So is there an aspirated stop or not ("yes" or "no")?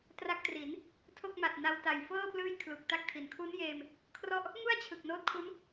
yes